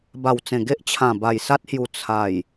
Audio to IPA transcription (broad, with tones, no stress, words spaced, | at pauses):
ba˨˩wt͡sẽ˨˩ɡe˦ʔ t͡ɕʰã˨˩ba˨˩jsa˦t̚hju˨˩ t͡sʰa˨˩j